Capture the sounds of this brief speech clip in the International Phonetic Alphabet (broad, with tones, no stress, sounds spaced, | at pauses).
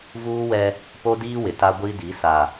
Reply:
v uː˦ w ɛ˦ | p o˦ d iː˦ w ɪ˨ t a˦ ɡʷ i˦ d i˨˦ s a˨